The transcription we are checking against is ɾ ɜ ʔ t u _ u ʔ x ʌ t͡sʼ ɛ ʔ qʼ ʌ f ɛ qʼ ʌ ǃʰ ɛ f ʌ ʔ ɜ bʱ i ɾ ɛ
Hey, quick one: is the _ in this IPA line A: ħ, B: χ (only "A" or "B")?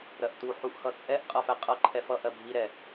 A